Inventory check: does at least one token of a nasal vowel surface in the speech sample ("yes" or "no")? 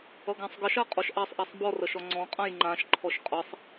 yes